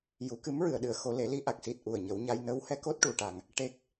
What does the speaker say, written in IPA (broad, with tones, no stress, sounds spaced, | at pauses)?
j u˨˩˦ k ɨ˧˥ m ɹ ɨ˨˩˨ ə̯ ɗ ɨ˨˩˨ ə̯ x o˨˩˦ l e˨˩˦ l i˧ ʔ a˨˩ k̚ s i˨˩ t̚ ʔ u˨˩ ə̯ ɲ ə˨˩˦ w ɲ a˧ j n ə˧˥ w h ɛ˧˥ k o˦˥ t̚ ʈ u˨˩ ʈ a˨˩ ŋ | ʈ e˦˥ k̚